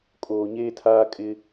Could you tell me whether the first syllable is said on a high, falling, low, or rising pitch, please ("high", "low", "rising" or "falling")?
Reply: low